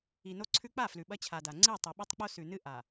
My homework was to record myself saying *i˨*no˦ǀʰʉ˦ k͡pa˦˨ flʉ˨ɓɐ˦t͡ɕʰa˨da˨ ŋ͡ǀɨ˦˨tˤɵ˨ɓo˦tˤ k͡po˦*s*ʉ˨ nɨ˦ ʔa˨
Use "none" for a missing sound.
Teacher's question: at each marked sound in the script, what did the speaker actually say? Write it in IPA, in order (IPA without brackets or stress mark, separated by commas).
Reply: i˨, s